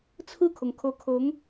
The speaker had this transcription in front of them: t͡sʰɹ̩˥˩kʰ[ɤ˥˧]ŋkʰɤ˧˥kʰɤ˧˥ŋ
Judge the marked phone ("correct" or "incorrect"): incorrect